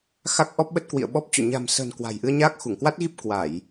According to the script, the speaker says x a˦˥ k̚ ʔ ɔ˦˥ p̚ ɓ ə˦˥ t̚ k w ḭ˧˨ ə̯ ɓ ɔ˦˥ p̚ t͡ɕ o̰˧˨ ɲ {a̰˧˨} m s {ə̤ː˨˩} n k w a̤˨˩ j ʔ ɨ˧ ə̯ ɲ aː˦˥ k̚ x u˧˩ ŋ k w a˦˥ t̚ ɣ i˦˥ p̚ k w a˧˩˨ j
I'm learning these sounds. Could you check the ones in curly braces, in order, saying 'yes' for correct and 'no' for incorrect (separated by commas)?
no, yes